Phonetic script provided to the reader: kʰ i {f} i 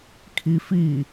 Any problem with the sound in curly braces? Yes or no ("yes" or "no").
no